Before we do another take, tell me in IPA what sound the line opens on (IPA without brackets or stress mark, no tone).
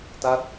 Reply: t